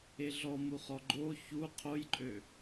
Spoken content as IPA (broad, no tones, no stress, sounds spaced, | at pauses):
e ɮ ɔ m u χ ɔ ɡ͡ǃ o ç u qʰ o j ǃʼ ø